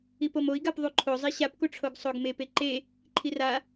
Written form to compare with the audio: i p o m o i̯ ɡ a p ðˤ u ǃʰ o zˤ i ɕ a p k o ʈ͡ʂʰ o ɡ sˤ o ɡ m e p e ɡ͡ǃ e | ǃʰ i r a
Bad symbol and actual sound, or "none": ɡ͡ǃ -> ǃ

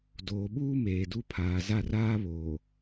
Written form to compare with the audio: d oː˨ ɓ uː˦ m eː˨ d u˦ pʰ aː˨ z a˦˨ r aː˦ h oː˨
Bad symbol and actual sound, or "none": h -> β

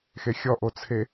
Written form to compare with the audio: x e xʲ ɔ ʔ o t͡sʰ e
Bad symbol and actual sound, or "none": none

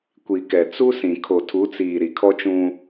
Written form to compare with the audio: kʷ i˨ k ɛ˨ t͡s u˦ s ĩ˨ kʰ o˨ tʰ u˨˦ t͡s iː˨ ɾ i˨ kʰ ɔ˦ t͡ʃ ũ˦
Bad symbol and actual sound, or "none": none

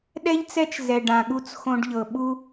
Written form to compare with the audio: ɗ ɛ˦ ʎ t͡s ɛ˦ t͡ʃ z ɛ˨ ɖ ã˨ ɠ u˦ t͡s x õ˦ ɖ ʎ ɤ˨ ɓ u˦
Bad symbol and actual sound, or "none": none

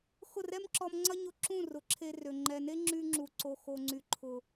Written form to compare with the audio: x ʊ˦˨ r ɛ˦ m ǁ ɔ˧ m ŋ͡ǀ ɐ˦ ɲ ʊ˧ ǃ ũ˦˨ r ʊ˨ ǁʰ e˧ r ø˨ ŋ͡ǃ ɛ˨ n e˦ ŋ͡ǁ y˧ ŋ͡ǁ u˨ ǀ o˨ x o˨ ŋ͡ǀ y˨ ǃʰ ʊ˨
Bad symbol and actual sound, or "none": ǃ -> ǁ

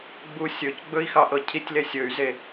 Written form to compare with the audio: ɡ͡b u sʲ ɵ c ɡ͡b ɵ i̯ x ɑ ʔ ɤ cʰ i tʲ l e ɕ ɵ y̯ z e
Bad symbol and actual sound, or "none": ɕ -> sʲ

